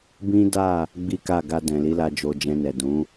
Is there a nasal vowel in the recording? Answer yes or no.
yes